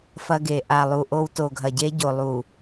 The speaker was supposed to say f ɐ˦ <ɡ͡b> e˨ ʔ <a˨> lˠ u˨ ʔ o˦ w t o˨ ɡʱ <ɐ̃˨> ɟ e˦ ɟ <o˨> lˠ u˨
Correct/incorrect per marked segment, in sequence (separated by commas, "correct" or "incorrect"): incorrect, correct, incorrect, correct